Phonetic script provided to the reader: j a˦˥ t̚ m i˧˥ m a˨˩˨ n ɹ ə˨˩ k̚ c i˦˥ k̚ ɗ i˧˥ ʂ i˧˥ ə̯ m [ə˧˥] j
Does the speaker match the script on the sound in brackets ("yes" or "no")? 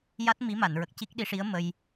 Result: no